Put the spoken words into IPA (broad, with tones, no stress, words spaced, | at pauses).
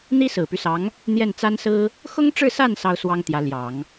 n̪i˥sɹ̩˨˩py˦sɑ˧˥ŋ | n̪jɛ˥˩nt͡sa˥nsɹ̩˥ | xʊ˥ŋʈ͡ʂɻ̩˥˧sa˥˩n sɑ˥ʊ̯swɑ˥ŋt̪jä˧˥ ljɑ˨˩˦ŋ